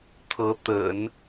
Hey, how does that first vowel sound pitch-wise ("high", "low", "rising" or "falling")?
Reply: rising